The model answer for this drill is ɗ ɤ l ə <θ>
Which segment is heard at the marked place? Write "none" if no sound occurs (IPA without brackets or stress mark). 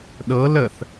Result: θ